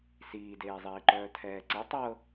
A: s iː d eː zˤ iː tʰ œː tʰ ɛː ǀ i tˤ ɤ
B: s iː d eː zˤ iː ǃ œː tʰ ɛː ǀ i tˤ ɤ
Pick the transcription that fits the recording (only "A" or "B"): B